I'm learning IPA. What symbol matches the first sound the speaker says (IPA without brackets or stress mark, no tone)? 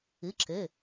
ɨ